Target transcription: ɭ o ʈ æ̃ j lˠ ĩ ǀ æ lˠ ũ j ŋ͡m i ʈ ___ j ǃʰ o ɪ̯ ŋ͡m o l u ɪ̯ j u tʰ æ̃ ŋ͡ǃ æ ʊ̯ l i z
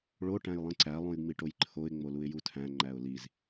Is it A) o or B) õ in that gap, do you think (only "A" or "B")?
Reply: A